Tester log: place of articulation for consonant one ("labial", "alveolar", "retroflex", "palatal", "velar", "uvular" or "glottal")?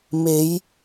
labial